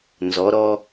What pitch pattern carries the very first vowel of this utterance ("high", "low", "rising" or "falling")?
rising